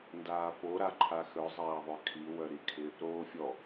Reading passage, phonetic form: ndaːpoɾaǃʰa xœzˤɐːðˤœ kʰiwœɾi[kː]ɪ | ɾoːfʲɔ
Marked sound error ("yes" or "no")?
yes